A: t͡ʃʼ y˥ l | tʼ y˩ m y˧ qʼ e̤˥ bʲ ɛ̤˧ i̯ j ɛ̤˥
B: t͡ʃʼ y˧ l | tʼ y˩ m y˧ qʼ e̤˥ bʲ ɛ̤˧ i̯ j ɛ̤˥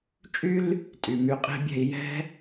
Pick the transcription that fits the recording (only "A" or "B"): A